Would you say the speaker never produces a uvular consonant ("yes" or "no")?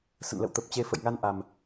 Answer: yes